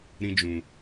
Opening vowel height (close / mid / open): close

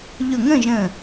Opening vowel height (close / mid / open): close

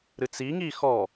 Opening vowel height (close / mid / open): close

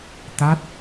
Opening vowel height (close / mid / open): open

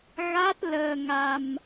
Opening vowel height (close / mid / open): open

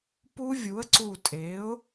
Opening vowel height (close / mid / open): close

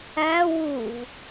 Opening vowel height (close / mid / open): open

